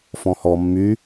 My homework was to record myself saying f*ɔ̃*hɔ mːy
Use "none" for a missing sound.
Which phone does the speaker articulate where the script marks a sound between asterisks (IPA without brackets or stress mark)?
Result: ɔ̃